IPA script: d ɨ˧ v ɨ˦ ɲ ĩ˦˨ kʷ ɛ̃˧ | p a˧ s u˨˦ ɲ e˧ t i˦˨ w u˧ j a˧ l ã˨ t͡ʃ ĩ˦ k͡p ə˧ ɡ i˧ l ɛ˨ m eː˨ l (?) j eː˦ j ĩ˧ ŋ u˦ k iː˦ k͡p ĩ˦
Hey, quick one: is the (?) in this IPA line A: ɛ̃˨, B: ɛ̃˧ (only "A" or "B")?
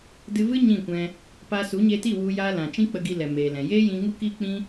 A